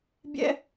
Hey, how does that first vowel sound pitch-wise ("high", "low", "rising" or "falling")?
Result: high